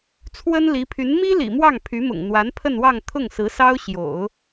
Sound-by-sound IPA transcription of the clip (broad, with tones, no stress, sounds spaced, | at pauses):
t͡sʰ w ə˥ n l i˧˥ pʰ y˧˥ n m i˥ l ḭ˨˩ m w ɑ˥˩ ŋ pʰ y˧˥ m ʊ̰˨˩ ŋ n̪ w a˧˥ n pʰ ə˥˧ n w ɑ˥˧ ŋ t̪ʰ ʊ˥˩ ŋ s ɹ̩˧˥ s ɑ˥ ʊ̯ ɕ j o̰˨˩˦ ʊ̯